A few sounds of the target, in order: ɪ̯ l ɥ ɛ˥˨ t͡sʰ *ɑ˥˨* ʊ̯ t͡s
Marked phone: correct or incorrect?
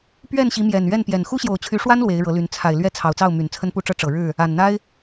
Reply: incorrect